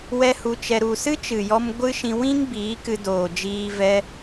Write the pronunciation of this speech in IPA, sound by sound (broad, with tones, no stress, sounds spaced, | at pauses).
w ɛ˦ h u˧ t͡ʃ ɛ˧ ɾ u˨ s ɨ˦ t͡ʃ ɨ˨ j ɔ˧ m ɡʷ ɨ˦ ʃ ĩ˧ w ĩ˦ ŋ b iː˨˦ k ɨ˧ d oː˨ d͡ʒ iː˧ v ɛ˧